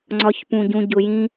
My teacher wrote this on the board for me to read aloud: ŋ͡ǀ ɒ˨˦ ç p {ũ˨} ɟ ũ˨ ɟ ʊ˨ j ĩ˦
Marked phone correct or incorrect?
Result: correct